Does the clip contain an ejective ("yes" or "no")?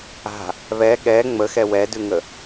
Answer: no